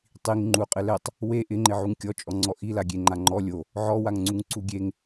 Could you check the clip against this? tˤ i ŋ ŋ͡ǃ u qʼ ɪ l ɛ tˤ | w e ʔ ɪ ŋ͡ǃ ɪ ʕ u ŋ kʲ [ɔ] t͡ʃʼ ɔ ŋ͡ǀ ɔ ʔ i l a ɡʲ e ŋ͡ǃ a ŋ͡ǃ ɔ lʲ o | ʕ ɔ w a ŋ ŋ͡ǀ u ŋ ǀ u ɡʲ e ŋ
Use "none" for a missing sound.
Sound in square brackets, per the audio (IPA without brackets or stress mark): ɔ